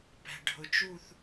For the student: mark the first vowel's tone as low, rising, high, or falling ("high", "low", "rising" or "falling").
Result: low